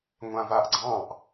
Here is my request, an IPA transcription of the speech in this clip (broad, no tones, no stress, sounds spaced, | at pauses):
ŋʷ ã v a ʔ ɡ͡ǀ ɑ̃ ʔ